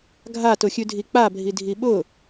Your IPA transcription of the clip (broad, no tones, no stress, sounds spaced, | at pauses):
ɡʱ a t ʊ xʲ ʉ dʱ i k͡p a bʱ i dʱ i ɓ ʊ